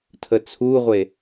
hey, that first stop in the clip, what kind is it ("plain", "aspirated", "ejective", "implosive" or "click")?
aspirated